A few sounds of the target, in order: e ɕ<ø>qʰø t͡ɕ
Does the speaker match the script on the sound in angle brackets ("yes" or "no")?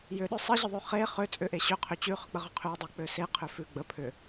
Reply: yes